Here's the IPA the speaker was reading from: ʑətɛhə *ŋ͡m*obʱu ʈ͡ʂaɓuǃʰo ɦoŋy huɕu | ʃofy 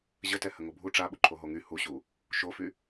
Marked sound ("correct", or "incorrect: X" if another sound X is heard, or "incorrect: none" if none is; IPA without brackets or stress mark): incorrect: ŋ